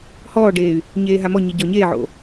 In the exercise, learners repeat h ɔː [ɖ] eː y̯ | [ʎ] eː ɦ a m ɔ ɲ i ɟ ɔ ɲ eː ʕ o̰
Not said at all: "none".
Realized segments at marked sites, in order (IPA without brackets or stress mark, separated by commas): ɖ, ɲ